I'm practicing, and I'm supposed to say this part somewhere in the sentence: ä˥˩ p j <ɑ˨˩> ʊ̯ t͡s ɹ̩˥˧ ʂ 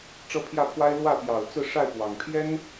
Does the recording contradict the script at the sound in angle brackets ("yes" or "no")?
no